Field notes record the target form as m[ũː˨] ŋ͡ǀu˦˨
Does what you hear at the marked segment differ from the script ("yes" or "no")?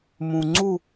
no